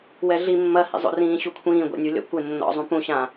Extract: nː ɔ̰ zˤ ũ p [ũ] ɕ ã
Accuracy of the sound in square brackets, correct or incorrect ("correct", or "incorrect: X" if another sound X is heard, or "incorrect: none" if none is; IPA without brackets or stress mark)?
correct